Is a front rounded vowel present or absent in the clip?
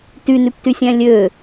present